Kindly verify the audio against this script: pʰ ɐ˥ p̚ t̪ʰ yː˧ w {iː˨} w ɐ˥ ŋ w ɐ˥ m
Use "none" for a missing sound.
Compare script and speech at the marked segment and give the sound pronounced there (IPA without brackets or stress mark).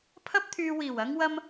iː˨˩